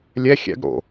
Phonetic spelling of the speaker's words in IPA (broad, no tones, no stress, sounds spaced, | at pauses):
lʲ ɛ xʲ ɛ̰ ɡ ɽ o̰